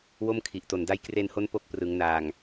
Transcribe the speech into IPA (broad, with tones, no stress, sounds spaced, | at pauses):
w o˥˩ m kʰ i˨˩ ʔ t o˨˩ n d a˦˥ j k r e˧ n h o˦˥ n p o˦˥ k̚ p r ɯ˩˦ ŋ n aː˨˩ ŋ